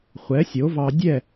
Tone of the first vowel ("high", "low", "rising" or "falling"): rising